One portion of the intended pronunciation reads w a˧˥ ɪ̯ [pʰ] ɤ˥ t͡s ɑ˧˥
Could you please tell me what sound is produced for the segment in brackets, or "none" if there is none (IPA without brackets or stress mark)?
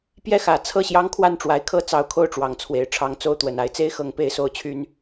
kʰ